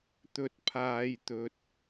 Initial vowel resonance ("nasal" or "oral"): oral